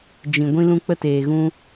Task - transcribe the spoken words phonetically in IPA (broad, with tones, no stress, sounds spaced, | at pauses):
d͡ʒ ĩ˨ ɡʷ ĩ˧ l ũ˧ k͡p ə˧ t eː˨ ɣ ũ˦